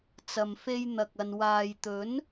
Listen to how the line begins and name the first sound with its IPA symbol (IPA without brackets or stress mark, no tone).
t͡s